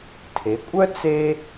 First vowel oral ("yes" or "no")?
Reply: yes